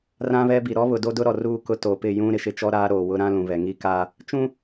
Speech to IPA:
r ã˦ β ɛ˦ b i˨ ɾ ɔ˦ β ʊ˨ d o˦ d ʊ˦ ɾ ɔ˨ r uː˦ k ʊ˦ t o˨ p ɪ˦˨ j ũ˦ ɾ ɪ˨ ʃ ɪ˦ t͡ʃ ɔ˦ ɾ aː˦ ɾ oː˨ w ʊ˦ ɾ ã˦ l ũ˨ β ɛ˨ ŋ i˦ k aː˦ | t͡ʃ ũ˦

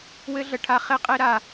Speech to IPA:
w ɘ˦ ɮ ə˧ ʈʰ a˦ χ e˦ qʼ e˦ ɾ a˧

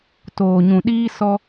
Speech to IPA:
t oː˨ ɲ ũ˨ ɗ iː˦ s ɔ˦

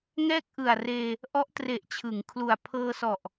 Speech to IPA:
ŋ ɛː˥˩ k̚ ʔ ɯ˨˩ a̯ r eː˧ | ʔ ɔ˦˥ ʔ t r e˨˩ ʔ t͡ɕʰ ɯ˩˦ ŋ kʰ l u˨˩ a̯ pʰ ɤː˧ s ɔ˨˩ ʔ

